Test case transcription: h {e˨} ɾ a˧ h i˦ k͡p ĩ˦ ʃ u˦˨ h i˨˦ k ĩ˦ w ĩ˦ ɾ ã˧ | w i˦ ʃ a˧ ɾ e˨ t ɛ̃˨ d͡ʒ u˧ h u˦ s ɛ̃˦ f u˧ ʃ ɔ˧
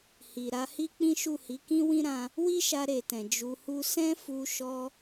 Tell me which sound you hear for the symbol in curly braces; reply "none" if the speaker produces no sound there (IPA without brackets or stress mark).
i˨